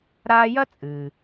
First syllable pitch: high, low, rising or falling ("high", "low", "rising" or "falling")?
high